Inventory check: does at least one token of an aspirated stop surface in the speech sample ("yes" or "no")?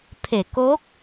yes